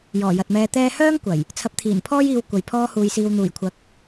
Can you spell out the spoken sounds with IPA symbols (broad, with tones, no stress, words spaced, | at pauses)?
jɔː˨˩jɐ˨t̚mɛː˧ t̪ɛː˥ hœː˥ŋ kʷɐ˨˩j | t͡sʰɐ˨˥p̚t̪ʰiː˨˩npʰɔː˥jiː˨˧w kʷɐ˨jpʰɔː˥huː˧jsiː˧w n̪uː˨˩jkʷʰɐ˨˥k̚